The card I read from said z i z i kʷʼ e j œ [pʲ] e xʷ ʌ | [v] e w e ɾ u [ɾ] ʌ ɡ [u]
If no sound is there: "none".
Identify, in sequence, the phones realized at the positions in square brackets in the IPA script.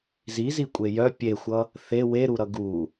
pʲ, θ, ɾ, u

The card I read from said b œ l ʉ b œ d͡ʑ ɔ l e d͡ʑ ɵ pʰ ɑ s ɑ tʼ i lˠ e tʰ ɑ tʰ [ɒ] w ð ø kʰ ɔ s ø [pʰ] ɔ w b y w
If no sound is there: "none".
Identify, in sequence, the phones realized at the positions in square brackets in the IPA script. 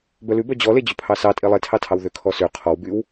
ɑ, qʰ

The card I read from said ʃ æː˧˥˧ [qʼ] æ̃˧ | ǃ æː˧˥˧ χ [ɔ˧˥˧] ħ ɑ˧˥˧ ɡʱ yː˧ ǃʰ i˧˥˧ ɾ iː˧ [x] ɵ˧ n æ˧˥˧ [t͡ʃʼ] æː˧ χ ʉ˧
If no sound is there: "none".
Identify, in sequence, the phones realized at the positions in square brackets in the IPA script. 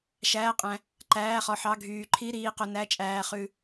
qʼ, ɔ˧, q, t͡ʃʼ

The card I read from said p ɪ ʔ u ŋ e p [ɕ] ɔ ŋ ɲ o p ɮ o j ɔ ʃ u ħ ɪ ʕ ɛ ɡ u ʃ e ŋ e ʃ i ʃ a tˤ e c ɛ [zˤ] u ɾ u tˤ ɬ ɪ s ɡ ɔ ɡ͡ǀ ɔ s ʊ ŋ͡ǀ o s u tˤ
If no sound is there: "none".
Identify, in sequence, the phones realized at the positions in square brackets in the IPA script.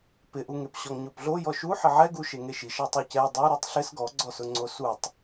ɕ, dˤ

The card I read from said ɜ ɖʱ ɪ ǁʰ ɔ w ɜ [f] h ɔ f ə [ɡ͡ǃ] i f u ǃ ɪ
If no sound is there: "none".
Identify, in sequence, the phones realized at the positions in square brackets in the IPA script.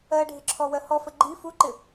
none, ɡ͡ǃ

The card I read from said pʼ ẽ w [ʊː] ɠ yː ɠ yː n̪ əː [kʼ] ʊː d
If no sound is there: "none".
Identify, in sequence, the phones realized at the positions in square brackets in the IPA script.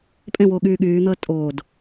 ʊː, tʼ

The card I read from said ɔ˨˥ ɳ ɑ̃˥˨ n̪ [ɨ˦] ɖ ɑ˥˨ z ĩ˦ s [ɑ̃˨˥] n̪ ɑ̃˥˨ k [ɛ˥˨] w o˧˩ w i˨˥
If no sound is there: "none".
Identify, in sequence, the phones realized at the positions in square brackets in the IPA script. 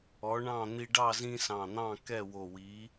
i˦, ɑ̃˧˩, ɛ˥˨

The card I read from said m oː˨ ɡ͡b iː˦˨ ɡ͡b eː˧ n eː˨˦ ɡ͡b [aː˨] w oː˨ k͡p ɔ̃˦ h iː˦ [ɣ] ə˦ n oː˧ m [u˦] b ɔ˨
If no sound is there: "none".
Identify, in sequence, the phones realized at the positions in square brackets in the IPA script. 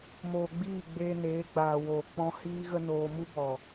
aː˨, ɣ, u˦

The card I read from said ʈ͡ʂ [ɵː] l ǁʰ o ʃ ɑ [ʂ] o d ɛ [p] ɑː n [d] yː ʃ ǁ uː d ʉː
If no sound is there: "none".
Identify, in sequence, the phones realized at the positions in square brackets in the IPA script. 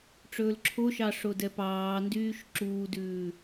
ɵː, ʂ, p, d

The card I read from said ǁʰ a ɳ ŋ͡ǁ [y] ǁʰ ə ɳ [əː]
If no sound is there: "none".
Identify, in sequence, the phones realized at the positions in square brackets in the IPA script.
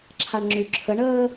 y, əː

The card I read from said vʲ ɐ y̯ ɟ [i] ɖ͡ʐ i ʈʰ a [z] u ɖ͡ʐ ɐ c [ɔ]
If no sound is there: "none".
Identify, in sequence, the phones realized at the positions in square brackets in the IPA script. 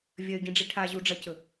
ĩ, ʑ, ɵ

